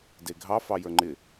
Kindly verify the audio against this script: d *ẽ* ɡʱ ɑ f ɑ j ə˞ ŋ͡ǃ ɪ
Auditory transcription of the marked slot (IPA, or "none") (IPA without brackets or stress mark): e